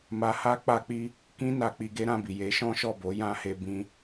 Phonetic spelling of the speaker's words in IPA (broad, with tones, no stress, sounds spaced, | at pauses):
m a˧ h a˦ k͡p a˧ k͡p i˧ | k ĩ˦ n a˧ k͡p i˧ ɡ e˦ ɾ ã˧ b i˨ j e˨˦ ʃ ɔ̃˦ ʃ ɔ˦˨ b o˨˦ j ã˦ h e˧ b ĩ˧